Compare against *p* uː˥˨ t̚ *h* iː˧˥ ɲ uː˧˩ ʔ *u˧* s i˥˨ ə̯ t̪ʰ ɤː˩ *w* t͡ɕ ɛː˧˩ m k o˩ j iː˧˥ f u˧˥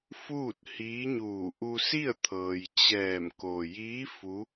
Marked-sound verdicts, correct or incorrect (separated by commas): incorrect, correct, correct, incorrect